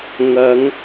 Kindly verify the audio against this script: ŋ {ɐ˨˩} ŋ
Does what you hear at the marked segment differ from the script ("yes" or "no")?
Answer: yes